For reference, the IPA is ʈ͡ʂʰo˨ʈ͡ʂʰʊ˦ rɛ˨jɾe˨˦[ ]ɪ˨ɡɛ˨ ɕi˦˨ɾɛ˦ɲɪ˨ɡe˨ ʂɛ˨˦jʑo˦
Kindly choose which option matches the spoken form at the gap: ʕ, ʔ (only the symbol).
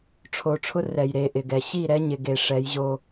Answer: ʔ